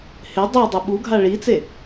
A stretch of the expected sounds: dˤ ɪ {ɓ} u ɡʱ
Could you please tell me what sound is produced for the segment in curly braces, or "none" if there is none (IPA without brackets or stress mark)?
ɓ